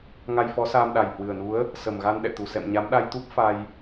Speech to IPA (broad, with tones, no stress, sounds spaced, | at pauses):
ŋ a˧ j f ɔ˨˦ s aː˧ m ɗ a˨˩ j h w ɨ˨˩ ə̯ n u˨˦ ə̯ | s ə˨˩ m ɣ a˧ n ɗ ɛ̰˧˨ t̪ u˧˩ s ɛ̰˧˨ m ɲ a˨˦ m ɗ a˧ j t̪ u˦˥ p̚ f a˧ j